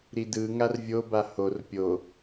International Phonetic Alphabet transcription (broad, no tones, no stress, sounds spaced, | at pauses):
ɾ i d ɯ ŋ a r vʲ o b a h o r pʲ o